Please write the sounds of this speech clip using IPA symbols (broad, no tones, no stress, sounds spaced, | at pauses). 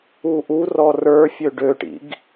u ʔ u r ɔ r ə˞ fʲ ø ɖ ø ʈ ḭ ɡ